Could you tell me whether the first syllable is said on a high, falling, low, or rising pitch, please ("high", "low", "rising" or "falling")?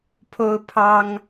high